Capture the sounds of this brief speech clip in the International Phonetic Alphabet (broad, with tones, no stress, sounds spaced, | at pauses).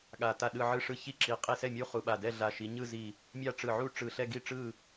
ɠ a˧˩ t a˥˩ ɗ ɯ˥˧ ʕ ɯ˥˧ ʂ ɯ˥˧ ç i˥˩ ǁ i˨˦ qʼ i˧˩ s ɛ˥˩ mʲ u˥˧ χ u˧˩ ɓ a˧˩ d ɛ˥˧ ɮ a˧˩ ʃ i˨˦ ɲ ɯ˥˧ z i˧˩ | mʲ a˥˩ ʈ͡ʂ ɯ˧˩ ʕ u˥˧ ʈ͡ʂ ɯ˧˩ ɬ ɛ˥˧ ɡ i˥˩ ʈ͡ʂ ɯ˥˩